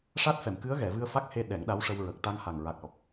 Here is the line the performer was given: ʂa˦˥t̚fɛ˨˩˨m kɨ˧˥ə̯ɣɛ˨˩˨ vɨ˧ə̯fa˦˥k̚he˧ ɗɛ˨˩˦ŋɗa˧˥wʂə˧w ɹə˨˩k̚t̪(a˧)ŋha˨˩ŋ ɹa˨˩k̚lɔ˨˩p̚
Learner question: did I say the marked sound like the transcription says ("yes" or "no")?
yes